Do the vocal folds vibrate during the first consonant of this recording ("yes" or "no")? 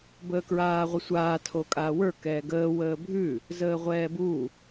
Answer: yes